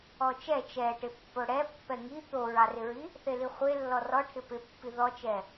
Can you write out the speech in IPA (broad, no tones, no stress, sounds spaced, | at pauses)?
ɔ t͡ʃ ɛ t͡ʃ ɛ ʈ ɪ pː o ɽ ɛ pː ɛ ŋ i t̪ o ɹ ɑ r ɪ ɹ i | θ e l i χʷ e lː ɔ r ɔ ʈʰ ɪ p ɪ pː i ð ɔ t͡ʃ ɛ